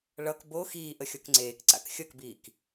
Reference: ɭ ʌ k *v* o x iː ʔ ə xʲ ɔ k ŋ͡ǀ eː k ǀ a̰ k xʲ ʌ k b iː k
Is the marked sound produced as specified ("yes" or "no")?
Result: no